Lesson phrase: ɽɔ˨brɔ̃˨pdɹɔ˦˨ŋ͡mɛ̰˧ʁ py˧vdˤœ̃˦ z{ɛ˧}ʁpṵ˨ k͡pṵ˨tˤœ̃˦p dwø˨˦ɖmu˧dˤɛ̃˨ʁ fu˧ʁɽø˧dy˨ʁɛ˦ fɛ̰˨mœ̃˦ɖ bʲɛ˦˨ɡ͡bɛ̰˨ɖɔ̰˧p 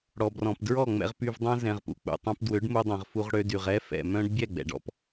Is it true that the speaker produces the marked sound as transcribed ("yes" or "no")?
no